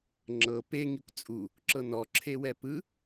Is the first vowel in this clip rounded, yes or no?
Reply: no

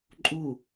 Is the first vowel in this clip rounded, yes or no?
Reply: yes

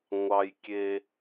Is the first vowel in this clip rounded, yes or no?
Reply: no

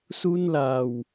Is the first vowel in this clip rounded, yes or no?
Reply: yes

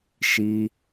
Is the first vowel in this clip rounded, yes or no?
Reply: no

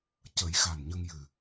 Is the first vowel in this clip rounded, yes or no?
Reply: no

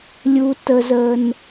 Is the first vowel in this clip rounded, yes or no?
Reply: yes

